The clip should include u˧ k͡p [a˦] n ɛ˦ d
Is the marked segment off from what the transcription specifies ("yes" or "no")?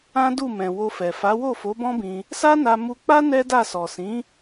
no